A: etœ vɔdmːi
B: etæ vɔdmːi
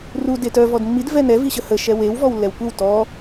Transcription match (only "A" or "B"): A